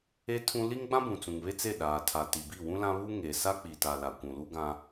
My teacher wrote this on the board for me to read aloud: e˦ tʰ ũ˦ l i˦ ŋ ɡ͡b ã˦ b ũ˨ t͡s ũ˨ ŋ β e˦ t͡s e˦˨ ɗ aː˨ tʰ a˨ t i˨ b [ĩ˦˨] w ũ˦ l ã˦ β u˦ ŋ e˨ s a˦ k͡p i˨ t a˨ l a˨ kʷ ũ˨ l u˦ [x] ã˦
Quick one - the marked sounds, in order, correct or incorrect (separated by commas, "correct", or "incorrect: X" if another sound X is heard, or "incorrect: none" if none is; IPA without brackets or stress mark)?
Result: incorrect: i˦˨, incorrect: ɡ